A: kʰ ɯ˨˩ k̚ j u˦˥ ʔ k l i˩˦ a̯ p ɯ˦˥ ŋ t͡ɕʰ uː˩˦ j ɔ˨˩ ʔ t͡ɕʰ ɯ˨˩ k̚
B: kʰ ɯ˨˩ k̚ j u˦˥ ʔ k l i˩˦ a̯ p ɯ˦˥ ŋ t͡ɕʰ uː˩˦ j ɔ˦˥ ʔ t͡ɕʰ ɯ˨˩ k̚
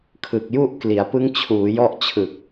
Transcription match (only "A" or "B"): B